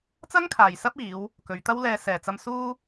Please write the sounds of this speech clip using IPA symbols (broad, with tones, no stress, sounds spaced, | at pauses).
t͡s ɐ˥ ŋ kʰ aː˨˩ j s ɐ˥ p̚ iː˨˧ w | k ɵ˨˧ ɥ t̪ ɐ˥ w l ɛː˧ s ɛː˨˩ t͡s ɐ˧ m s uː˥